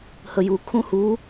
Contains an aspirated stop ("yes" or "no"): yes